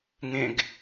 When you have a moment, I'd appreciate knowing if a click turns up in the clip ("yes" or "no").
no